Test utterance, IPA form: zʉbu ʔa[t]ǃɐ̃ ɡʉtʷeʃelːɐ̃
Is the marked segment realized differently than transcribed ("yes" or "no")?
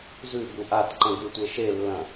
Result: no